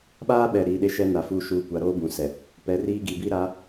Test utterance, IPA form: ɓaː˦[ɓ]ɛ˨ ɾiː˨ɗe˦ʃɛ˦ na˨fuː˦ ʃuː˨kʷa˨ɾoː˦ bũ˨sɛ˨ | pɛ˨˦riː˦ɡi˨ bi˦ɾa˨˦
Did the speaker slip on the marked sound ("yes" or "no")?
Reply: no